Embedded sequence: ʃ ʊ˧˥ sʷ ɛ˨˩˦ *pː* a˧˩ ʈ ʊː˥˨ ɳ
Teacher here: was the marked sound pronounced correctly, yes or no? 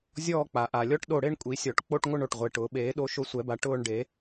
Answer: no